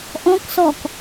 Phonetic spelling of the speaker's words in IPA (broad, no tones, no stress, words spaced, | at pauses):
ʔɔ̃ksɔk